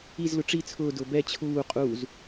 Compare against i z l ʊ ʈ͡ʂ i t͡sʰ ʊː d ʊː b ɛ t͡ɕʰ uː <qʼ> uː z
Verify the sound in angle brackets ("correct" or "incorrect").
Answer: correct